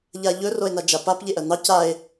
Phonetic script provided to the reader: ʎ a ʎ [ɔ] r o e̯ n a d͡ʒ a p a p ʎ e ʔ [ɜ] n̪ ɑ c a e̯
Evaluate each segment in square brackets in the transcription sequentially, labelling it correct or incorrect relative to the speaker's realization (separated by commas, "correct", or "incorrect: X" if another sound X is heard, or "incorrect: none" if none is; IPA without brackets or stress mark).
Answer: incorrect: ɵ, correct